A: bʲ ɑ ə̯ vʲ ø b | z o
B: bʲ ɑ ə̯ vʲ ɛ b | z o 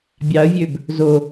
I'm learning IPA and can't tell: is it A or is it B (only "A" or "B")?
A